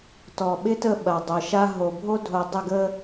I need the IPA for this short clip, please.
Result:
t ɔ˨ ɓ ɪ˦ t ə˦˨ ɓ ɐ˨ dˤ œ˨ ʃ a˦ ɦ o˨ bʱ o˦ dʱ o˨ dˤ ə˦˨ ɡ ə˦

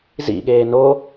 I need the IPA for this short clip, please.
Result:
z ḭ ɠ eː n o

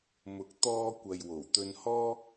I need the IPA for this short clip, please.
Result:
m ʊ˨ k̚ t̪ ɔː˧ kʷ ɐ˨ j w o˨˩ w t̪ ɵ˧ n h ɔː˥

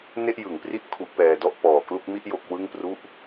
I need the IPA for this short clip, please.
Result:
n e˥˩ ʔ j ɯ˩˦ ŋ p r i˥˩ ʔ kʰ u˦˥ ʔ p ɛː˧ d ɔ˥˩ ʔ p ɔː˨˩ k l u˥˩ k̚ m i˥˩ ʔ j o˦˥ k̚ w ɯ˥˩ ŋ p r u˥˩ ʔ

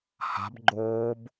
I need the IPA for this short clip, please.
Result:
h a̤ b ɡ͡ǃ oː b

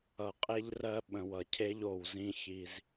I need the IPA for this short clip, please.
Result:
ʌ˨ qʼ e˦ ʎ r ɜ˦ ɓ ə̃˨ w ʌ˨ cʰ e˦ ʎ o˨ w z ĩ˦ ç i˦ z

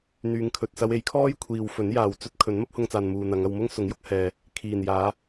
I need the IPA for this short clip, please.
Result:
n̪ yː˨˧ ŋ kʰ ɵ˨ t̚ s ɐ˧ w e˨˥ j kʰ ɔː˥ j kʷʰ iː˨ w f ɵ˨˥ n j aː˨ w t͡s ɵ˥ t̚ kʰ ɵ˨˥ n m ɐ˥ p̚ h ʊ˧ ŋ t͡s aː˨ n m uː˨ n̪ ɐ˨˧ ŋ ɐ˧ w m ʊ˥ ŋ s ʊ˨˥ ŋ j ʊ˨˥ k̚ h ɛː˧ | kʰ iː˨˩ n j aː˨˧

